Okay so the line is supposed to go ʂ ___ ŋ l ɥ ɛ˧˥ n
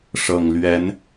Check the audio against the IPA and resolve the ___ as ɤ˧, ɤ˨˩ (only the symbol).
ɤ˨˩